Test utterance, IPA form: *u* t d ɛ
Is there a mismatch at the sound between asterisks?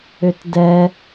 yes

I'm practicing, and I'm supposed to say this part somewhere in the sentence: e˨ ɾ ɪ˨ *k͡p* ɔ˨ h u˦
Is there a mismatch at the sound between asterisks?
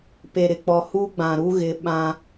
no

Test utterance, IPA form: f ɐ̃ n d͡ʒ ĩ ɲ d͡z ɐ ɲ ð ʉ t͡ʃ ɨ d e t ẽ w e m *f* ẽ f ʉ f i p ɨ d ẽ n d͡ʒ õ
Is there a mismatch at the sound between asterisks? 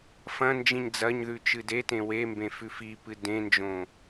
yes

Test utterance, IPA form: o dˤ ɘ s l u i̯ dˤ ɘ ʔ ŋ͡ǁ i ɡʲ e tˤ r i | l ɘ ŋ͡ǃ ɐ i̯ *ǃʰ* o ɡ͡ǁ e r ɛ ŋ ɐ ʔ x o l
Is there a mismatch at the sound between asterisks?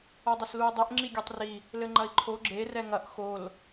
no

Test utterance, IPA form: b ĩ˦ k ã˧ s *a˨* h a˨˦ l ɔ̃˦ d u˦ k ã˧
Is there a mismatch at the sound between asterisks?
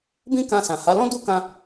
yes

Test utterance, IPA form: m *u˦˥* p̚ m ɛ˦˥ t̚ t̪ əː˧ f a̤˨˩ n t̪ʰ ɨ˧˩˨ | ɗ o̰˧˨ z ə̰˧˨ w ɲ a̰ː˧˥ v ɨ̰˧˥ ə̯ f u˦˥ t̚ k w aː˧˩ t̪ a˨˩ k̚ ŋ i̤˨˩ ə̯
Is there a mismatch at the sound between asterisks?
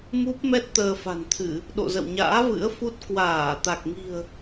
no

